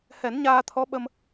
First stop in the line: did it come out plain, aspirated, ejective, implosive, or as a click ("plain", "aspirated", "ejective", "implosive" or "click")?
aspirated